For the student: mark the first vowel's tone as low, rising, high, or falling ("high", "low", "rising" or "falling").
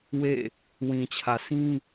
falling